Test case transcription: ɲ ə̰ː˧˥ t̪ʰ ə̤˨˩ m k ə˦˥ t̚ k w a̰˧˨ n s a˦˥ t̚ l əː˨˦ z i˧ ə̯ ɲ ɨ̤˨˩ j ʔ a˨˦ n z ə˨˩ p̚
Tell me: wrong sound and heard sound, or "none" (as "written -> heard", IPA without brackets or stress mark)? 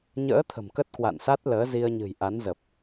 none